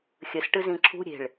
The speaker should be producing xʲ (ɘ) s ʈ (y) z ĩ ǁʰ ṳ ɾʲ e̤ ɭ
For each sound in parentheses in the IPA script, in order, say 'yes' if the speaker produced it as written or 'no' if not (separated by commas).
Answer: yes, no